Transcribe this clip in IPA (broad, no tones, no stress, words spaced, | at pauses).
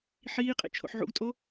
ħiːqʼḛ t͡ʃʰo̰ħʕṵɡtʼo